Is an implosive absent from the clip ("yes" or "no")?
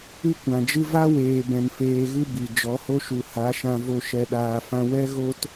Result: no